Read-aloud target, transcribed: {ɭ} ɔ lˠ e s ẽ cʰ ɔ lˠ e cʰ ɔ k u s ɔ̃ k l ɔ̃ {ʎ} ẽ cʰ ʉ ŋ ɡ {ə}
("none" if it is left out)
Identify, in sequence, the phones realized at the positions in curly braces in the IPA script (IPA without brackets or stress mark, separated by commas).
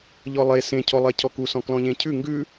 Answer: ʎ, ʎ, ʉ